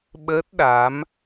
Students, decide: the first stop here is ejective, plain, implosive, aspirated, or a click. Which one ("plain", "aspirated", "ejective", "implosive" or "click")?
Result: implosive